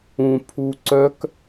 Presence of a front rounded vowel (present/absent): present